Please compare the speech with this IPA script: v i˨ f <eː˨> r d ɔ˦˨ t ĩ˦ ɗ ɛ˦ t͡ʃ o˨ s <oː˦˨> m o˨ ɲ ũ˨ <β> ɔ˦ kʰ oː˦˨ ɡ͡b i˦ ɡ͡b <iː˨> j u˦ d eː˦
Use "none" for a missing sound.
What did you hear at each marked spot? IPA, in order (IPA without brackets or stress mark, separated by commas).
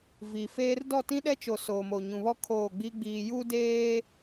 eː˦, oː˨, β, iː˨